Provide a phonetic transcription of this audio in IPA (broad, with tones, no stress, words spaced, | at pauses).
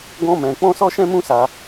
ɡɔ̃˦mɛ̃˧ k͡pɔ̃˦sɔ˦ ʃɛ̃˦mũ˦sa˧